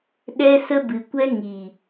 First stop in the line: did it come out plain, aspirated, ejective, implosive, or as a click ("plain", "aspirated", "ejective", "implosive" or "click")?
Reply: implosive